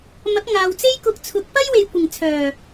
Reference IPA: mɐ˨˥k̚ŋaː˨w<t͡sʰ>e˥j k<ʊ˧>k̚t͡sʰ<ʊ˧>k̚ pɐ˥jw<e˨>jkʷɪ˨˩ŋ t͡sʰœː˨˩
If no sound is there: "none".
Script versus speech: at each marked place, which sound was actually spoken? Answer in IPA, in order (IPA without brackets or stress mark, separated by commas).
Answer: t͡s, ʊ˧, ʊ˨˥, e˨